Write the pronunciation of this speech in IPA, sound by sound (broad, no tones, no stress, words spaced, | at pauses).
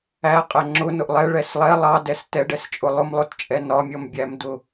æqʼɛ ŋ͡ǁʊnʊʔ lˠɛɭɛs lˠɛ lˠɑdɛs tɛɖɛst͡ʃʼʊ lˠʊmlˠʊtt͡ʃʼɛ nɒmʲʌmbʲæmdʊ